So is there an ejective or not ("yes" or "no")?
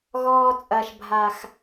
yes